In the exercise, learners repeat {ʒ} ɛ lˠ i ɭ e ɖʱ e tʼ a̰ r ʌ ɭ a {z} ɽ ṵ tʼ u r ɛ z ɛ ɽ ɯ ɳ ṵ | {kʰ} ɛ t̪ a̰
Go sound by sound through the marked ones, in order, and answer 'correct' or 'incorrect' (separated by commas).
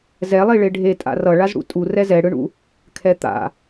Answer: incorrect, correct, correct